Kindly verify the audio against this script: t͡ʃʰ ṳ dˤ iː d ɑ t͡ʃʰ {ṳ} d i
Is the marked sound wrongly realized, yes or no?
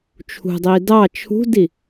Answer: no